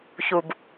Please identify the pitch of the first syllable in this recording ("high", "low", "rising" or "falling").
low